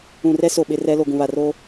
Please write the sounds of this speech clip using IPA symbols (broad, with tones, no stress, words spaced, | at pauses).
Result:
ũ˨rɛ˦ so˨ ɓɪ˦rɛ˦ lo˨ɡũ˨βa˨roː˦